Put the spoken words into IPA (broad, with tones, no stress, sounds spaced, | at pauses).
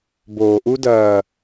b oː˨ ʔ u˦ d ɐː˨